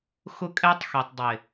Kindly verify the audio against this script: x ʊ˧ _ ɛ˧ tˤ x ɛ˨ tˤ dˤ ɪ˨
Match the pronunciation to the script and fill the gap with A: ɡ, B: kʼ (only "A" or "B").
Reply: B